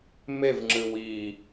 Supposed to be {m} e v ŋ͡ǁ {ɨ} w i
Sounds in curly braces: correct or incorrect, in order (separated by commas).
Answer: correct, correct